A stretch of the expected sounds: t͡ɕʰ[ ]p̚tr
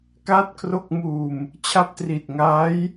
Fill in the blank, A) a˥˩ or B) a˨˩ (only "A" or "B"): A